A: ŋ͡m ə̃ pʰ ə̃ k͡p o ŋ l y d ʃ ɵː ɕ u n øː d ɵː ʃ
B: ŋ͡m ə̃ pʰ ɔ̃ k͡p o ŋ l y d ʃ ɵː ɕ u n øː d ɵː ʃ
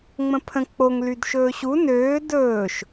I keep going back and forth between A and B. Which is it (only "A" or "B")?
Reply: A